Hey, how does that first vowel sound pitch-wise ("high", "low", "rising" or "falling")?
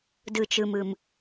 low